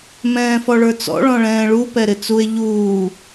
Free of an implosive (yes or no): yes